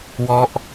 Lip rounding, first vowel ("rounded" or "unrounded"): rounded